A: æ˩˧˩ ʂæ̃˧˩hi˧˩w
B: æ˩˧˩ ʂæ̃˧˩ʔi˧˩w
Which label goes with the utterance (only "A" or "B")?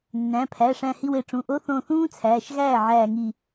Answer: A